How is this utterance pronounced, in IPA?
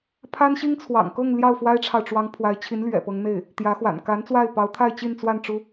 pʰ a˥ n ɕ i˥ ŋ t͡sʰ w ɑ̰˨˩ ŋ k ɤ˥˧ ŋ l j ɑ˥˩ ʊ̯ f w a˥ ɪ̯ ʈ͡ʂʰ ɑ˨ ʊ̯ ʈ͡ʂ w ɑ˧˥ ŋ pʰ w a˧˥ ɪ̯ t͡ɕʰ i˧˥ n l ɥ ɛ̰˨˩ p ɤ˧˥ ŋ n̪ e˥˩ ɪ̯ | t̪ j ä˧˥ x w a̰˨˩ n k a˧˥ n t͡s w a˥˩ ɪ̯ p ɑ˧˥ ʊ̯ t̪ʰ a˥˧ ɪ̯ t͡ɕ i˥˧ n t͡s w a˥˩ n ʈ͡ʂ u˥

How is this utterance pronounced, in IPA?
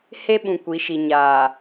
h e˦ ɓ ũ˨ kʷ i˨˦ ʃ i˨ ɲ aː˨

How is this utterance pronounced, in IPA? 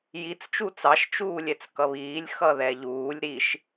j i t͡s t͡ʃ u t͡s ɑ ʃ t͡ʃ uː lʲ ɛ t͡s k ʌ β iː lʲ x ʌ ð ɛ ʎ uː lʲ ɾ i ʃ

